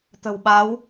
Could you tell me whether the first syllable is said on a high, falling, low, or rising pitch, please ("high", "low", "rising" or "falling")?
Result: low